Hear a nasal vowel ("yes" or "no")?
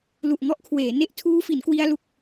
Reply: no